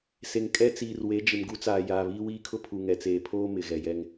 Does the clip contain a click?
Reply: no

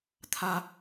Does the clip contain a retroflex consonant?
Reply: no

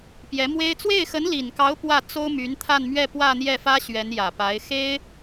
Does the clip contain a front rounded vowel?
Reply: yes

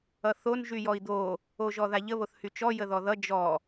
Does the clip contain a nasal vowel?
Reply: no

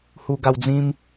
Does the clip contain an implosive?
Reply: no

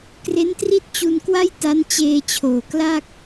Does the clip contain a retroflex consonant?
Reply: no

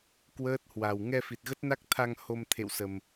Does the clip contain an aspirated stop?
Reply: yes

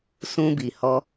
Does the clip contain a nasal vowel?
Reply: yes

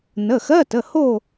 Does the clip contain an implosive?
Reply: no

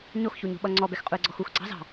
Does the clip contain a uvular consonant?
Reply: yes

